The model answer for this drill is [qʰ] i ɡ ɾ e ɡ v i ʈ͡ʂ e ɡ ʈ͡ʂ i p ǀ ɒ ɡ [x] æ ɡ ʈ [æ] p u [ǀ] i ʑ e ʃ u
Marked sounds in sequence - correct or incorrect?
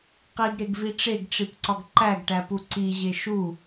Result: incorrect: q, incorrect: ǃ, correct, correct

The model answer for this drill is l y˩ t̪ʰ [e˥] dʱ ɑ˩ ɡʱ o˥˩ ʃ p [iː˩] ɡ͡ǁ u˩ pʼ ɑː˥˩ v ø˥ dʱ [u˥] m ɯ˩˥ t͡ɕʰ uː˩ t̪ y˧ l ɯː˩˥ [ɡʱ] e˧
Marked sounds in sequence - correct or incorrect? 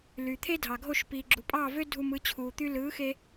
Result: correct, correct, incorrect: u˧, incorrect: x

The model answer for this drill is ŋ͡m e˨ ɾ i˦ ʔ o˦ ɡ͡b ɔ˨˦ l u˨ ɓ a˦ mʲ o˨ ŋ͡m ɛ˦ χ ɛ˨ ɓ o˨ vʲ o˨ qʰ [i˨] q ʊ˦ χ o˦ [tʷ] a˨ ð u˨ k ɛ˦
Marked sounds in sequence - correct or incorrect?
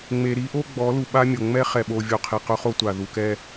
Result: correct, correct

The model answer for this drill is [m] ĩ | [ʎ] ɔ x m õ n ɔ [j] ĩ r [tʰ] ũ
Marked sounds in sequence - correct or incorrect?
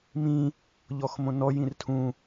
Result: correct, correct, correct, correct

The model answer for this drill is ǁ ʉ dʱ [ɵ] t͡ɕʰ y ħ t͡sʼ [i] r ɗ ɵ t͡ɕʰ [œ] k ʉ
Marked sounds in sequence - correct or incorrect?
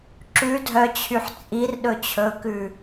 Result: incorrect: œ, correct, incorrect: ɵ

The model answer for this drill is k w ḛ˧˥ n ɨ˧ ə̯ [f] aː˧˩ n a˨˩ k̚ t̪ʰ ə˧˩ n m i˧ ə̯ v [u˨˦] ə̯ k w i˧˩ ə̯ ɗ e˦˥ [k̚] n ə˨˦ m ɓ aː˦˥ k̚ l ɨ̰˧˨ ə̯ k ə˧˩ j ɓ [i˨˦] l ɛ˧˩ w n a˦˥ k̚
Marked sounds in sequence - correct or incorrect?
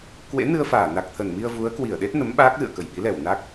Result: correct, correct, incorrect: t̚, correct

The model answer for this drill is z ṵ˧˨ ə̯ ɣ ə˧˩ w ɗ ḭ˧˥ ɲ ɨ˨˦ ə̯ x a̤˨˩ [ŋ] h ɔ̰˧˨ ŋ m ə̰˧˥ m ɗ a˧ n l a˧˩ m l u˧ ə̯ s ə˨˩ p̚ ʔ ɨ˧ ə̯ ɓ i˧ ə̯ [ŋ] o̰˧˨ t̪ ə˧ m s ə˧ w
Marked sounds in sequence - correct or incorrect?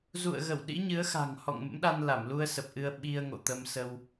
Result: correct, correct

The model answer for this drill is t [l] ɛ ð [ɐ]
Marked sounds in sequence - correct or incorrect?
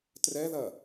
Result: incorrect: r, correct

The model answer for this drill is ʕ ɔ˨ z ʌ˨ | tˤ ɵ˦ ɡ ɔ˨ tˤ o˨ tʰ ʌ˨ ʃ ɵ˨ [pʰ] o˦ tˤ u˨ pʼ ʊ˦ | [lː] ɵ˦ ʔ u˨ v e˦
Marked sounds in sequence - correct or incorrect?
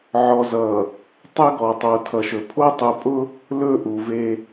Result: correct, incorrect: l

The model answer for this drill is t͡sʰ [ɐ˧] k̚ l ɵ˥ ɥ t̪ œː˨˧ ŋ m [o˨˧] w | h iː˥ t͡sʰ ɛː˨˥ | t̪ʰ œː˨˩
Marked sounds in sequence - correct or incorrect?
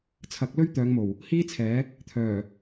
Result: incorrect: ɐ˨˥, incorrect: o˨˩

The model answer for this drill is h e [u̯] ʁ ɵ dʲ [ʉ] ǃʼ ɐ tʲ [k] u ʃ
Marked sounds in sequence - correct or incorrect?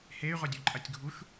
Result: incorrect: y̯, incorrect: u, incorrect: ɡʱ

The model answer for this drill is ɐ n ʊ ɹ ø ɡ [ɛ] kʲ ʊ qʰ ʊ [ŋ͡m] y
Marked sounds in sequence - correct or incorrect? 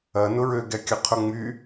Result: correct, correct

